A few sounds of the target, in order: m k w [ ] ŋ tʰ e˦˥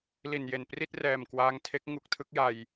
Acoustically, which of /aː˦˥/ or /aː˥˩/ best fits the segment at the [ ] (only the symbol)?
aː˦˥